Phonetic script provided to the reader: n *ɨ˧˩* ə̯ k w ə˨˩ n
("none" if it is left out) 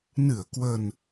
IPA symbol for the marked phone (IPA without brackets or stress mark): ɨ˧˩